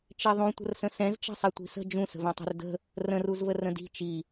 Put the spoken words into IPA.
t͡ʃeðˤũ tʷə̤rsə̃sɛ̃z t͡ʃɛ̤sˤɛtʷi̤sə̤ d͡ʒũ sə̤vɛ̃tˤɛ̤rdə̤ | rə̃r uzvərə̃di̤ t͡ʃi

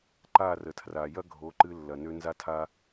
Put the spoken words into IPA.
ǃa˦˨rə˨tʰra˨ jɐ˦ ɡʱo˨˦ǃɨ˧ lːɐ˨nø˧ nza˦tʰa˦

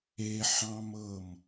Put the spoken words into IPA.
eħɑ̃mɤm

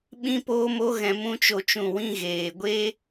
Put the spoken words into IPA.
ɓĩ˦poː˦mo˦ ɣɛ̃˧mũ˦t͡ʃo˧t͡ʃũ˦˨ wĩ˧ɣeː˨ɡʷe˦

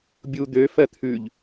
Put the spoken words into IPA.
bʲu d̪ø fɜt̪ʰʉʎ

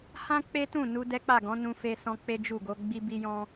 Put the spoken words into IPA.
hã˦ k͡pe˦tũ˦˨nu˧ dɛ˦k͡pa˦˨ɡɔ̃˨˦ nũ˧fe˧ sɔ̃˦k͡pe˦ d͡ʒu˦˨ ɡo˧ ɡ͡bi˦bi˦jɔ̃˦

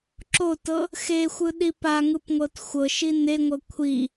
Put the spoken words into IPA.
ǁotɤ | xexʷɯɗi paŋɯpŋʷɤt xʷɤʃi neŋʷɤ kʷʰi

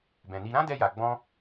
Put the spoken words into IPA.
bɛ̃˨ni˧ ɾã˦dɛ˧ja˨ ɡ͡bɔ̃˧

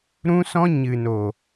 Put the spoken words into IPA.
ɾũ˦sɔ̃˦ ɲɨ˨no˨

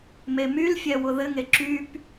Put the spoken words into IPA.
memylfʲɛ wʊðɘŋe ǁyp

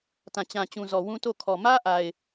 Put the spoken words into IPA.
tã˨t͡ɕã˨t͡ɕũ˨zɔ˨ wũ˦to˦˨ kʰɔ˨mä˦ʔa˨ɪ̯

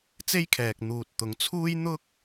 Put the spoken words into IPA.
t͡se˥jkʰɛː˨k̚ n̪uː˨t̚t̪ʊ˨˧ŋt͡sʰuː˥j n̪ʊ˥k̚

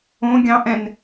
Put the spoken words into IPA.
õ ɡʲɑ̃ʔɛ̃n

